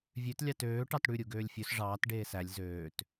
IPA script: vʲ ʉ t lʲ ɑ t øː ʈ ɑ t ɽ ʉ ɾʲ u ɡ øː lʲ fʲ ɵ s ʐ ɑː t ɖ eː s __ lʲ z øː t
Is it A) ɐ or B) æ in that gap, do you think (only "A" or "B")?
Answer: B